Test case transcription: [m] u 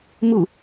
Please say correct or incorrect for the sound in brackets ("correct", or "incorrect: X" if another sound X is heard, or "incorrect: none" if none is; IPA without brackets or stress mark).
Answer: correct